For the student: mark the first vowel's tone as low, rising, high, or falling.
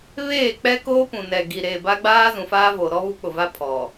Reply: falling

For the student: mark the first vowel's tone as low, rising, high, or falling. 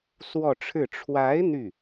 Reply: falling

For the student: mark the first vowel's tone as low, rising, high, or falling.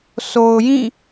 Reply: low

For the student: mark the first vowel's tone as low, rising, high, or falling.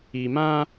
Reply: low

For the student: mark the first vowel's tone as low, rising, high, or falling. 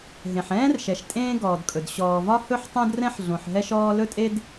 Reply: low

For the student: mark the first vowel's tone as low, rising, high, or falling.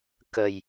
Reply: low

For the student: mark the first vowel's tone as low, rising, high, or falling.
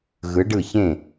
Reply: rising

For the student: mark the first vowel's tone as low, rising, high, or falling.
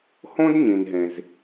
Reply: high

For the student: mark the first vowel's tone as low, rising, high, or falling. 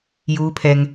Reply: high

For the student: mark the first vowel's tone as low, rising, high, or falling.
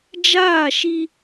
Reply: falling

